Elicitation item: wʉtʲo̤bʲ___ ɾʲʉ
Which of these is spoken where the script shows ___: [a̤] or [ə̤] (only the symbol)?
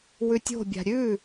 a̤